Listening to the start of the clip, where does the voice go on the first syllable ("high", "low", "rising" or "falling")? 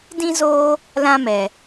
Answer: high